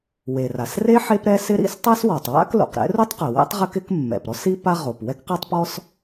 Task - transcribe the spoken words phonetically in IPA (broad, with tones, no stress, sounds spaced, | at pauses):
w e˩ r a˩ s r e˥ ħ e˥ p ɾ ɛ˥ s ɪ˥ ɾ ḭ˥ s tˤ a˥ s w ɔ˩ tˤ w a̰˥ k l o̰˩ q ɾ ɛ̰˥ r u˥ tˤ q ɛ˩ w ɛ̰˥ tˤ ʁ ɪ˥ k ɪ˥ k mː ɛ̰˩ p ɾ ɔ˥ s i˥ p a˥ ʁ o˩ p w ɛ˥ k q a˥ tˤ p ɔ˥ s